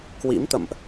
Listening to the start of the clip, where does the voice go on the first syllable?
rising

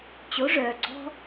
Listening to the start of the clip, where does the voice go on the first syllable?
rising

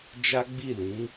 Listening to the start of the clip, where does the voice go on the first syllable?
high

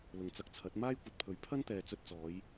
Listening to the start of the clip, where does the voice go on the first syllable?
low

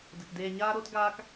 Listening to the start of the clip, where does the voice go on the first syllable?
low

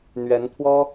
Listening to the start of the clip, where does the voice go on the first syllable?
rising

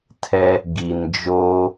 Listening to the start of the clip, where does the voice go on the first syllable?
high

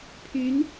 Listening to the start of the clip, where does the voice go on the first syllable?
rising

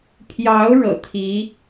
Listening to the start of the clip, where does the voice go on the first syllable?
rising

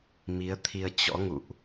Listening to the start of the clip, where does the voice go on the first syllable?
rising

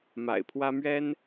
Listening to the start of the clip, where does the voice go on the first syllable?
low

